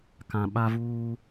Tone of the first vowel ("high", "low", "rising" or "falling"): low